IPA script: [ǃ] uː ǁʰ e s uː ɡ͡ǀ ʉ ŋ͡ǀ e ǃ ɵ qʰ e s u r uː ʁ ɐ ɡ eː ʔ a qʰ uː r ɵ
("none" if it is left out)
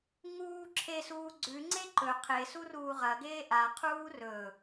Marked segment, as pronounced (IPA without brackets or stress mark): ŋ